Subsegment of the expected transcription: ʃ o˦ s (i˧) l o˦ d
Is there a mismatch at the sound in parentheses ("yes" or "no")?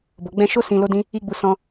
yes